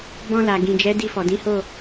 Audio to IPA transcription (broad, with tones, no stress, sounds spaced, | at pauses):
b ɔ̃˧ l a˨ ɡ ĩ˨ d͡ʒ ɛ˨˦ d i˧ f ɔ˨ d ĩ˨˦ h o˦˨